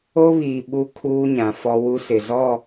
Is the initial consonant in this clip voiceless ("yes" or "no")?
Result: no